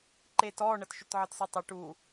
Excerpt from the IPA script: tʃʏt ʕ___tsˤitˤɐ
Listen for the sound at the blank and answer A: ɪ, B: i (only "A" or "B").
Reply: A